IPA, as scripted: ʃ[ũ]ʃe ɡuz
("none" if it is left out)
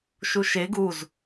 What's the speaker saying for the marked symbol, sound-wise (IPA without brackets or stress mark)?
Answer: u